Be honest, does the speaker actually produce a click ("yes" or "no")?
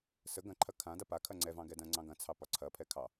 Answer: yes